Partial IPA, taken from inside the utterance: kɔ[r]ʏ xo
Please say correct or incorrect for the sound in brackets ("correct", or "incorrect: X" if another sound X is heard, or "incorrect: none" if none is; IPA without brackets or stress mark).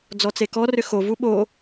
correct